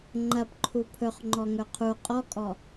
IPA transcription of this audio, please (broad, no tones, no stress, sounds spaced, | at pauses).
ŋ͡ǃ ɐ p ǃʰ u pʰ ɵ χ ŋ͡ǃ ɔ ŋ ɵ qʰ u qʼ ɔ kʼ ɔ